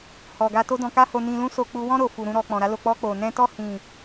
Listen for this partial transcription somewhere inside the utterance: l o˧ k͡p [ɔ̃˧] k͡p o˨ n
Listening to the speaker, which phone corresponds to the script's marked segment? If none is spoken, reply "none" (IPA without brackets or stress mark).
ɔ˧